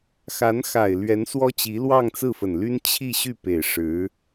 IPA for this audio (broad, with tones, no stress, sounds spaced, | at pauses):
x a˧˥ n x a˨˩ ɪ̯ l ɥ ɛ˧˥ n s w ɔ˥ t͡ɕ i˧˥ l w ɑ˥˧ ŋ t͡s ɹ̩˥˩ f ə˨˩ n l y˥ n t͡ɕʰ i˥˧ ɕ y˥˩ p e˨˩ ɪ̯ ʂ ɻ̩˧˥